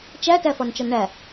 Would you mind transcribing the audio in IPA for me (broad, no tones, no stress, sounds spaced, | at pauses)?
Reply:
t͡ʃ æ t æ f ɒ n t͡ʃ ɒ n ɳ æ